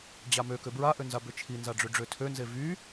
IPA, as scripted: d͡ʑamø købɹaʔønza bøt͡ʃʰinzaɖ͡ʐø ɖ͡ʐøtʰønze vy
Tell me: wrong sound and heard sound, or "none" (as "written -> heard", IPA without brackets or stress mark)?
none